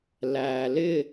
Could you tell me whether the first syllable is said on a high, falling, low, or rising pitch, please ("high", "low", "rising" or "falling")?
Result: low